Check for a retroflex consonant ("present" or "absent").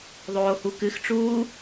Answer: present